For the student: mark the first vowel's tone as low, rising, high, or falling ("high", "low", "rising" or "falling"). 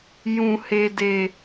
low